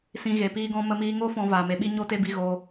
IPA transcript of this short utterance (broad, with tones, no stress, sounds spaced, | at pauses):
s ĩ˧ ɣ e˨ p iː˦ ɡ ɔ̃˦ m ə˧ m iː˧ ŋ o˦ f ɔ̃˧ v aː˨ m e˧ ɓ i˦ ɲ o˦ t e˦ b i˧ ɣ o˧